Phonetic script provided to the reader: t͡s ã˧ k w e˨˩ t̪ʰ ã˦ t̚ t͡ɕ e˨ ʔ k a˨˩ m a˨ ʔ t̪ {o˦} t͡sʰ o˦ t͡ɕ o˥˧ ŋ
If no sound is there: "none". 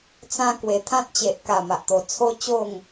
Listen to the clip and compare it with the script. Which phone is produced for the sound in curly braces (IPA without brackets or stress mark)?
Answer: o˨˩